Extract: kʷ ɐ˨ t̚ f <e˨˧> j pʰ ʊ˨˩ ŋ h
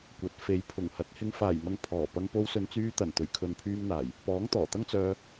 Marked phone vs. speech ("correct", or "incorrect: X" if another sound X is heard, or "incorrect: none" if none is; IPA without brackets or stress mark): correct